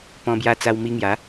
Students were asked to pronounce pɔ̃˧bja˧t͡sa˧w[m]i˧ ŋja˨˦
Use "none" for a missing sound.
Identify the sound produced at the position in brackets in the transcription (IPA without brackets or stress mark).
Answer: m